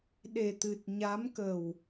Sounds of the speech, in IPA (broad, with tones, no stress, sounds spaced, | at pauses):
ɗ e˨˩ t̪ ɨ˨˩ t̚ ɲ a˧˥ m k ə˨˩ w